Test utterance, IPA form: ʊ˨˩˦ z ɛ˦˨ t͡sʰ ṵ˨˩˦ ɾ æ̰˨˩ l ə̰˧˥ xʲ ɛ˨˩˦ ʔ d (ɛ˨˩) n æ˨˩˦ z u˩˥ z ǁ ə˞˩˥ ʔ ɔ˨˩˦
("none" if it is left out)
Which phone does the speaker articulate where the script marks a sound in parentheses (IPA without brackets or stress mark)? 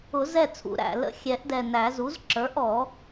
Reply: ɛ˨˩